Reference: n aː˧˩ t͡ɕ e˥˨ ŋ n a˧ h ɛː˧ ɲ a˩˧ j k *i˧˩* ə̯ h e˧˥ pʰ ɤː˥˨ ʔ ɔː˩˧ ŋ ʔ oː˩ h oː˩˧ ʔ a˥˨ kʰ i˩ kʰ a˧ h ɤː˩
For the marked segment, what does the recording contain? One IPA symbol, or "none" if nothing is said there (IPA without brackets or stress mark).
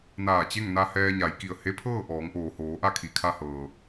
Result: i˧˩